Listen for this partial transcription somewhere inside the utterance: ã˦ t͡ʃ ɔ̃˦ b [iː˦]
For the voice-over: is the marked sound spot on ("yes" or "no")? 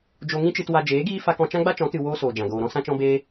no